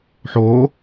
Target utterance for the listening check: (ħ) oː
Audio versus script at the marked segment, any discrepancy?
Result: no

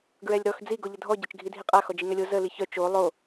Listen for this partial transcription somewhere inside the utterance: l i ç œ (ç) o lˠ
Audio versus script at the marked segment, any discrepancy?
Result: yes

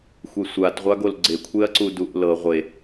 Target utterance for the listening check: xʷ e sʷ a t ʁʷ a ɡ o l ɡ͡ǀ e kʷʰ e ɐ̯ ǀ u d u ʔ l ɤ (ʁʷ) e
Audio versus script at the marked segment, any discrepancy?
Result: no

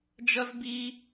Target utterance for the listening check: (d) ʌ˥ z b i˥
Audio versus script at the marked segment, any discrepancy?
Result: yes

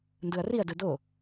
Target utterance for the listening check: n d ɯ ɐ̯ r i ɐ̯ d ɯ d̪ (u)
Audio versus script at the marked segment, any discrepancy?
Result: yes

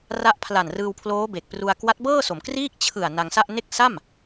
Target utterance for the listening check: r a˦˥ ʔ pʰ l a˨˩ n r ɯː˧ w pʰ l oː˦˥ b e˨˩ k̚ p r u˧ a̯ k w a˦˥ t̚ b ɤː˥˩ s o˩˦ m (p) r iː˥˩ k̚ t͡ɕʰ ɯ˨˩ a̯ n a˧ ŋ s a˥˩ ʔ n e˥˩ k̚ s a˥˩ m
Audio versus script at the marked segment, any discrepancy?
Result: yes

